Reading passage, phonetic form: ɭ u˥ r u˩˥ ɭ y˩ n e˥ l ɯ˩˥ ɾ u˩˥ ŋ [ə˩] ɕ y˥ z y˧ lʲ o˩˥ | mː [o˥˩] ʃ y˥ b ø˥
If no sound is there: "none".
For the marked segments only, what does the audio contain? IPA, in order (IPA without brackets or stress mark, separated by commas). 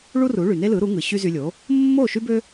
ɯ˩, o˥˩